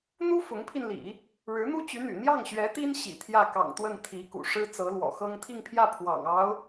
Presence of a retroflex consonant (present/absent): present